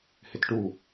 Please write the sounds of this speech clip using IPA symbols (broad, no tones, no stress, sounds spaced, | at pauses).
h ɪ t ʈ u